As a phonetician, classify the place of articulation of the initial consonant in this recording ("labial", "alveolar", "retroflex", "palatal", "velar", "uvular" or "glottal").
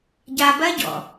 palatal